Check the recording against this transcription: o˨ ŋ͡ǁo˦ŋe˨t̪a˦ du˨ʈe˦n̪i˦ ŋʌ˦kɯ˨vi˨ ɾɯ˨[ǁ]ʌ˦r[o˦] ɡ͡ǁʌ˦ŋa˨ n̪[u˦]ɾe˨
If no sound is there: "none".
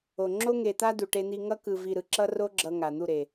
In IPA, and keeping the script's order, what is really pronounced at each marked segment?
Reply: ǁ, o˦, u˦˨

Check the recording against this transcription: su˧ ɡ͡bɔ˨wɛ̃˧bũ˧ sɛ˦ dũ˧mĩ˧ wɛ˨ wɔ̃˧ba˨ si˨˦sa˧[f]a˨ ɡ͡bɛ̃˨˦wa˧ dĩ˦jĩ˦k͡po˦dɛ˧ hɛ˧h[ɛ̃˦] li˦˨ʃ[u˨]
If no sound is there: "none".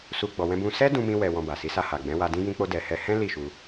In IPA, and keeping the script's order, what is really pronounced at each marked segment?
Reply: h, ɛ̃˦, u˧

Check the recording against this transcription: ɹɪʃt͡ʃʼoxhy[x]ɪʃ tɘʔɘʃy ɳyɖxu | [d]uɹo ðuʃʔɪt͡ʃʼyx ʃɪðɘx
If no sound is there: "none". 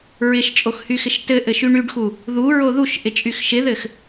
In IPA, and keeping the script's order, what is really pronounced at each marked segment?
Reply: x, ð

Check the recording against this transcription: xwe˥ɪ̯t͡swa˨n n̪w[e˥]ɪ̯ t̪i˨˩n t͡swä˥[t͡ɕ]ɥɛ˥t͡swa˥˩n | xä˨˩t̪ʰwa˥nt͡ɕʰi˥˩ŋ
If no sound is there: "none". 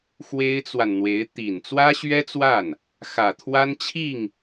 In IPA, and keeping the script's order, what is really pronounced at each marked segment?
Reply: e˧˥, ɕ

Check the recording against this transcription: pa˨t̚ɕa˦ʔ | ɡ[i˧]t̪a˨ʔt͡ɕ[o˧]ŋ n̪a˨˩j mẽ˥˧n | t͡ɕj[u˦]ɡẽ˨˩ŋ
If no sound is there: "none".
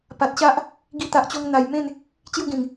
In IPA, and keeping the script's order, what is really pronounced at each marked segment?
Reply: i˧, o˧, u˥˧

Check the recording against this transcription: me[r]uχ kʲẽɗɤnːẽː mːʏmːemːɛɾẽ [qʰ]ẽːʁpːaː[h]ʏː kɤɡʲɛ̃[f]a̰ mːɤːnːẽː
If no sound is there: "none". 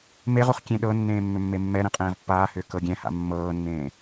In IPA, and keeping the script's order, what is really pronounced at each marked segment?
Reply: ʁ, qʼ, h, h

